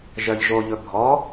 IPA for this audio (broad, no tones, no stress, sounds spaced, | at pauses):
ʒ œ ʎ ʒ o ʎ ɵ bʱ ɔ